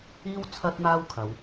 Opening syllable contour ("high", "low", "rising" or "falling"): high